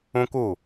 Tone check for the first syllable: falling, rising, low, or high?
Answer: high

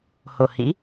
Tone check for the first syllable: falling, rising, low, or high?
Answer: low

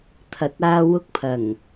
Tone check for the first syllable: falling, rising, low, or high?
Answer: rising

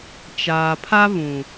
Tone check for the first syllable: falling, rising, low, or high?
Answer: low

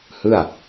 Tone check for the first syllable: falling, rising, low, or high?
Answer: falling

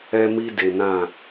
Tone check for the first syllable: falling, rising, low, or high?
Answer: high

